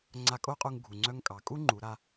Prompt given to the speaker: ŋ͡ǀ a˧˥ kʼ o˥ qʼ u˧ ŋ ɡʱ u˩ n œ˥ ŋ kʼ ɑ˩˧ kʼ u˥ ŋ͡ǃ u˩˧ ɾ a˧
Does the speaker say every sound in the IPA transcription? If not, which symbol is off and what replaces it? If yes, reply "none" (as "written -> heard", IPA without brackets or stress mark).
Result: n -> ŋ͡ǀ